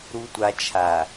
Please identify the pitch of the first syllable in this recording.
low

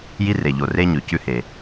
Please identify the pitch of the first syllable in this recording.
high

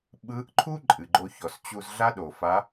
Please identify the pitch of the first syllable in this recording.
rising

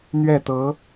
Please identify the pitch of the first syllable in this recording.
falling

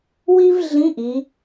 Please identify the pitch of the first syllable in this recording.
high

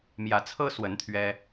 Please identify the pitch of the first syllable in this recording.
rising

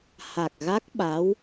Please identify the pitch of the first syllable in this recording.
low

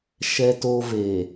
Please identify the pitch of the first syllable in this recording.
high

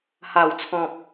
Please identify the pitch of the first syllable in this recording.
low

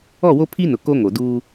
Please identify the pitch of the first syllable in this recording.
falling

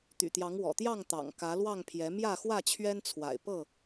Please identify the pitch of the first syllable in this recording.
low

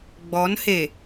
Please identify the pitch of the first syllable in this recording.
rising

